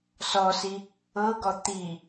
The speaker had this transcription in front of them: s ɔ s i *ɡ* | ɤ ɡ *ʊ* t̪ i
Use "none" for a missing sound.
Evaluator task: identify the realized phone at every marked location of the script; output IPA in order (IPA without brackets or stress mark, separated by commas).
none, ɔ